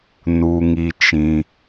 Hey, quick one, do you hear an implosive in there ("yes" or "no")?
no